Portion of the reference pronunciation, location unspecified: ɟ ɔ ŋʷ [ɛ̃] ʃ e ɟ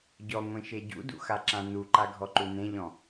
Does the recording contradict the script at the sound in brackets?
yes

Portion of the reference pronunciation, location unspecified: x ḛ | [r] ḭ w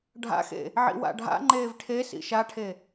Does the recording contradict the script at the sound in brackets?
yes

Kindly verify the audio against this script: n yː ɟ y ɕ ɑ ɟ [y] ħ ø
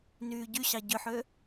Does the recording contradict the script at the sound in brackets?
yes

